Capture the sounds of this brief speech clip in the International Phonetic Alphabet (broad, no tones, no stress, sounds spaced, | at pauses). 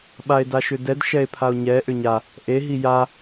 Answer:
ɓ a e̯ d a ʃ ʏ d ɛ d ʃ ɛ e̯ pʰ a o̯ ɲ ɛ ʔ ʏ ɲ a | ʔ e ɦ i j a